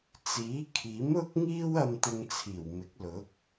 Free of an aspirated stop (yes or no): no